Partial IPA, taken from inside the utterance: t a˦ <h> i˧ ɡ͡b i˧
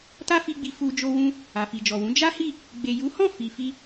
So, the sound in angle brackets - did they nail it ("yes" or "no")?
no